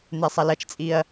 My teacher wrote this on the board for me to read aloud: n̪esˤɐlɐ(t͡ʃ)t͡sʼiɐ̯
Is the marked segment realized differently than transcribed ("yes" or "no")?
no